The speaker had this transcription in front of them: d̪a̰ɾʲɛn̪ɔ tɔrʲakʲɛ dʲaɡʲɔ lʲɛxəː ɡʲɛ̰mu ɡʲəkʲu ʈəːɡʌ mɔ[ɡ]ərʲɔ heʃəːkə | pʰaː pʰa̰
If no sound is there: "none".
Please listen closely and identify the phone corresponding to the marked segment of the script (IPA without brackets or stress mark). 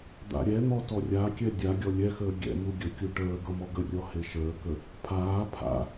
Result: ɡ